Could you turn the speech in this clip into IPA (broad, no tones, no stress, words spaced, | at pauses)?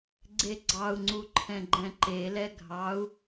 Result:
ɡ͡ǀeɡ͡ǀɑu̯ŋ͡ǀu ǃʰɛ̃ɡ͡ǃɛ̃ǃelɛ ɡʱɑu̯